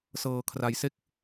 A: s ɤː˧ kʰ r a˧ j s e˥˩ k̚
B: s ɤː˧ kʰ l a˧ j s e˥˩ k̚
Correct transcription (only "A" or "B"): A